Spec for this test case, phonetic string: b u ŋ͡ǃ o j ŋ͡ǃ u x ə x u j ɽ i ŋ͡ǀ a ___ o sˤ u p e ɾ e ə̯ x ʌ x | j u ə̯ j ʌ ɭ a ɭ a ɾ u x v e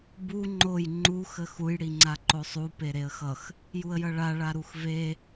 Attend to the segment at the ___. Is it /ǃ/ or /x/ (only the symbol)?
ǃ